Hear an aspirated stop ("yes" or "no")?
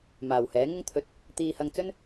yes